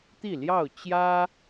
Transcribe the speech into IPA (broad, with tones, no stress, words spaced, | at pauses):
t̪i˥˨ljɑ˥˨ʊ̯ t͡ɕjä˦